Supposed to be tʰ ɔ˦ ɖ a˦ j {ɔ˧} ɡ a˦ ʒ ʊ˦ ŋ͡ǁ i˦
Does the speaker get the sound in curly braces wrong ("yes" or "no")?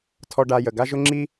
yes